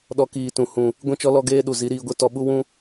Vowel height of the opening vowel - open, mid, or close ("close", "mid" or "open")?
mid